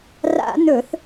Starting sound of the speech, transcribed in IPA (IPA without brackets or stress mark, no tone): r